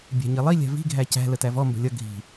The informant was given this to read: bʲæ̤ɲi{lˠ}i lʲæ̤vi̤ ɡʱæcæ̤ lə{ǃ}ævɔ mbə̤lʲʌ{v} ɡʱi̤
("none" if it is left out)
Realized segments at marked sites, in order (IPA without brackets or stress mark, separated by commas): lˠ, t, none